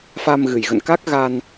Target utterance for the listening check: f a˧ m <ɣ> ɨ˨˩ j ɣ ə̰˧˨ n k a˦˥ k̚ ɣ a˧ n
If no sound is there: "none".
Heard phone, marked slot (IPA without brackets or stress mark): ɣ